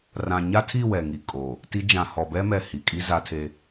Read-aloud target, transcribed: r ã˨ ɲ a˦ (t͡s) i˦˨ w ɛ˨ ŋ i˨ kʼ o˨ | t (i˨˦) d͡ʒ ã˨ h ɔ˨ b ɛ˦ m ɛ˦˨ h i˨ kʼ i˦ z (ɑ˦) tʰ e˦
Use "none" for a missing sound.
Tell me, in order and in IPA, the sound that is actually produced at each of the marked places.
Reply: tʰ, i˨˦, a˦

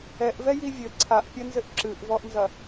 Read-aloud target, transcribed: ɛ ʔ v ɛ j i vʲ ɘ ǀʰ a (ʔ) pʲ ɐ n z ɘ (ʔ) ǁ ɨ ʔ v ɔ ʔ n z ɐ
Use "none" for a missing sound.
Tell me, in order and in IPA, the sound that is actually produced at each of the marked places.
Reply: ʔ, ʔ

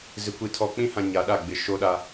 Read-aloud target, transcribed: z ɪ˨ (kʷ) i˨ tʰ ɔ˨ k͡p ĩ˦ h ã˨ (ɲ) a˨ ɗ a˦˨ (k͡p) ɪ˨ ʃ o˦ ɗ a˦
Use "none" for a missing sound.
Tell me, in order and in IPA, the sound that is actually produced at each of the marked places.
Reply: kʷ, ɲ, ɡ͡b

